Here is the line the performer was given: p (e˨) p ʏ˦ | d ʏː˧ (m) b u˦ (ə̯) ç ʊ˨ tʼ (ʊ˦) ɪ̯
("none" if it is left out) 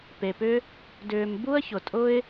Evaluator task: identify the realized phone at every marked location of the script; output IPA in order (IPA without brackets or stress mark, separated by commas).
e˨, m, ə̯, ʊ˦